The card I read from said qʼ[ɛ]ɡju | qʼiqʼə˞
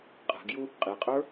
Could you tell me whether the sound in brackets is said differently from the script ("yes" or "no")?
yes